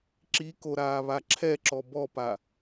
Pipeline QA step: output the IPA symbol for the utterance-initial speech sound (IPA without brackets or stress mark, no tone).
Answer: ǁ